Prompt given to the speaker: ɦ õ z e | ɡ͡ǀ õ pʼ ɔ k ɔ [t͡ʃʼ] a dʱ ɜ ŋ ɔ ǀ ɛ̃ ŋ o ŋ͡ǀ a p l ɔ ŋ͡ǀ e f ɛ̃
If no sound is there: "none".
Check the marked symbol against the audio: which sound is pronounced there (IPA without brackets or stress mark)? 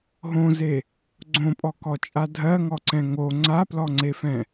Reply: t͡ʃʼ